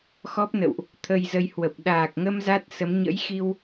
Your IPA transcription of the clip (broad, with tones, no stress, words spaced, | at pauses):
xɔ˦˥p̚nə̰˧˨wʔ | t̪ʰə˧jzə˧j hwə˨˩p̚ ɗaː˨˩k̚ŋə˧m za˦˥t̚sə˨˦m ɲə̰˧˥jxi˧w